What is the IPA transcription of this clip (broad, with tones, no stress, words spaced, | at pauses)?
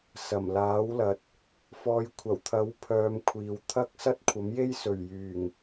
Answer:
sɐ˨˩mlaː˨˥wlɐ˨t̚ | fɔː˧j kʷʰɐ˨˩wt̪ʰɐ˨˥w pʰœː˨˧mkʷʰiː˨w t̪ʰɐ˥k̚ sɐ˥t̚kʷʰɐ˨˥mje˥j sɵ˨˩ɥjyː˨˩ŋ